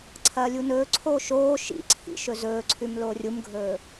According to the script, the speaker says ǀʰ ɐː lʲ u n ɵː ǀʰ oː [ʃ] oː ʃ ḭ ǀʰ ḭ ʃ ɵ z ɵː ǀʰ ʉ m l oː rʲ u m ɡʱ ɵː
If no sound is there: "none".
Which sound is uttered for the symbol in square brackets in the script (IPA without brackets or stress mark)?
ʃ